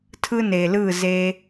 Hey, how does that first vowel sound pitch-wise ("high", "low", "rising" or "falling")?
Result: high